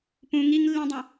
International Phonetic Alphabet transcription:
p ũ ŋ i ŋ lː ĩ dˤ ũ

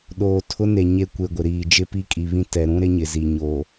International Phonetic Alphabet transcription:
ɗ oː˨ tʰ ʊ˦ n e˨ ɲ e˦ kʷ e˨ ɡʷ ɪ˨ ɾ iː˨ d͡ʒ ɪ˦ p i˦ kʼ i˨ β ĩ˦ t ɛ˨ ɾ ũ˦ ɾ ɪ˦ ɲ ɪ˨ z i˨ ɲ o˨

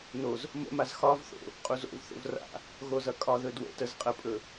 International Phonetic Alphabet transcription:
n o z | m ə̰ m a z x ɒ v θ o̰ | qʼ u z o̰ v θ o̰ v r a̰ | ɣ o z ʌ kʼ ɒ ð ɵ d w ə̰ t ə z qʼ ə pʼ ɵ

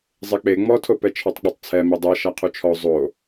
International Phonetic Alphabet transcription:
zˤ e k͡p e ŋ͡m ɔ tʰ o p ɛ t͡ʃʰ ɔ tˤ k͡p ɔ tˤ t͡sʰ ɛ m i dˤ ɤ ʃ a qʰ u t͡ʃʰ ɔ zˤ o

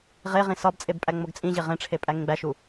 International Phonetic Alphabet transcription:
ʁ e ʁ ĩ s ɒ b t͡sʼ e b pʼ æ ŋ͡m o ɡ t͡sʼ ĩ ʑ e ʁ ẽ ʈ͡ʂʰ e pʼ æ ŋ ẽ ɡ͡b æ ʃ u

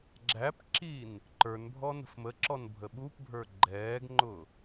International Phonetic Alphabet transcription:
ɡ͡ǁ æ p ǁ i n | ǃ ə˞ n bʱ ɔ n ə̤ f m ə ǁ ɔ n bʱ ə ɓ u p bʱ ə˞ ɡ͡ǃ ɛː ɡ ŋ͡ǃ ʊ

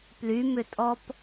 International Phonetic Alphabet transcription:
p l y m ʏ tʼ ɔ p

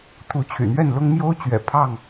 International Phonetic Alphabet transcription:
t̪ʰ u˨˦ t͡ɕʰ y̰˨˩ n̪ ɥ ɛ˥˨ n l ʊ˦ ŋ m j o˦ ʊ̯ t͡ɕ ɥ ɛ̰˨˩ pʰ ɑ˥˨ ŋ

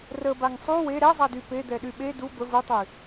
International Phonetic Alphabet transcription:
r ə b a ŋ sˤ u w e ɾ ɛ zˤ a d y p e d̪ ɛ ɗ y ɓ e d u b ə v u tˤ y

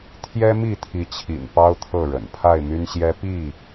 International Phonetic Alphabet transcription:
t̪ʰ j ɛ˦ m i˥˨ t̪ʰ i˨˦ t͡ɕʰ ḭ˨˩ n p ɑ˦ ʊ̯ t̪ʰ ɤ˥˨ ɻ ə̰˨˩ n pʰ a˥˨ ɪ̯ m y˦ n ɕ j ɛ˦ p i˥˨

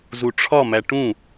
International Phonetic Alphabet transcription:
z u ʈ͡ʂʰ ɒ m æ ʈ ũ

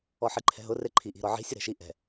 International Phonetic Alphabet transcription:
ɔ ħ i ǃʰ ɛ̤ ɦ ʊ r e ǃʰ i ʔ i̤ ɾ ɔ ʕ i̤ sʲ ʊ ɾ ɛ̤ ʃ i ʔ ɛ̤

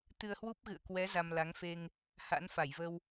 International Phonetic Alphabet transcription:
t̪ ɨ˧ ə̯ h w u˦˥ p̚ ɣ ɨ̰˧˨ ə̯ k w ɛ˨˦ z a˧ m l a˨˦ ŋ f e˧ ŋ | h a̰˧˥ n f a˧˩ j v ə˧ w

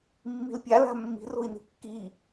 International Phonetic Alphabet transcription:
mː i̤ l pʲ a l a̤ mː i̤ r o̤ i̯ n i̤ kː i

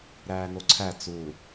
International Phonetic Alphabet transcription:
ɾ æː n o ǀʰ æ t͡s u

